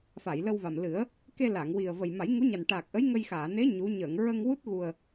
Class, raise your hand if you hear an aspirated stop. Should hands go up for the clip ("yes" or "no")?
no